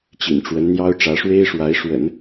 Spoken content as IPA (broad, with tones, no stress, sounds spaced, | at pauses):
t͡ɕ ḭ˨˩ n ʈ͡ʂ w ə˧˥ n n̪ j ɑ˥ ʊ̯ ʈ͡ʂ ä˧˥ ʂ w e˥ ɪ̯ ʂ w a˧˥ ɪ̯ ʂ w ə̰˨˩˦ n